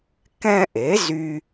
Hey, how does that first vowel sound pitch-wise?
high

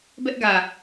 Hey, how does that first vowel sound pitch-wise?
high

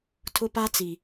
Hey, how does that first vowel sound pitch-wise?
high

